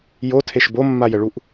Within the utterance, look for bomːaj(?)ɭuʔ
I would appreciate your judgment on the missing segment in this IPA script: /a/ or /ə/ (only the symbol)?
ə